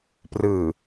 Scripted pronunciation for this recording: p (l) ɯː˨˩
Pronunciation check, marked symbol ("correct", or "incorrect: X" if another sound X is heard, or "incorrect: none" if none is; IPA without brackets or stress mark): incorrect: r